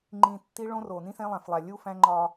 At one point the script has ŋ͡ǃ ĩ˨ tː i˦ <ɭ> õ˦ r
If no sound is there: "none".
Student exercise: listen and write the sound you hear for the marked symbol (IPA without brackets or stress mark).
ɭ